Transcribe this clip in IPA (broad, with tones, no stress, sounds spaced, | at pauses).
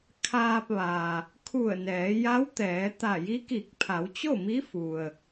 kʰ aː˧ p̚ ʋ a˩ | kʰ u˧˩ ə̯ n ɛː˩˧ j a˧˥ w t̪ ɛː˩˧ t̪ a˧˩ j i˧˥ k i˧˩ k̚ pʰ a˩˧ w t͡ɕ o˥˨ m i˧˥ f u˩ ə̯